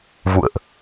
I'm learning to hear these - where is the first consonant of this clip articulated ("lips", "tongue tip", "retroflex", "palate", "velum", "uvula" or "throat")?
lips